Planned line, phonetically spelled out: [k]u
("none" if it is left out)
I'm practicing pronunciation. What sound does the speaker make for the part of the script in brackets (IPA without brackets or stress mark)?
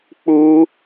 k͡p